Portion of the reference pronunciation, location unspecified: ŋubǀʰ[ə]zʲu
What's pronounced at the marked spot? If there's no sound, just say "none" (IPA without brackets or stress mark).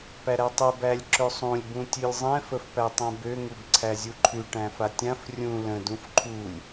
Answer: æ